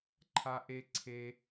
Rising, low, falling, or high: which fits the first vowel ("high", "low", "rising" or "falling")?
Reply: high